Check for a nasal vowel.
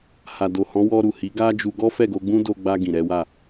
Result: present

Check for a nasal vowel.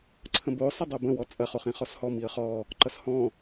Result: present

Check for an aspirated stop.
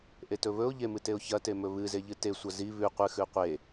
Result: absent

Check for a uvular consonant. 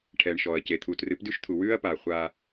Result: present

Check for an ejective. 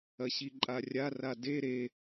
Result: present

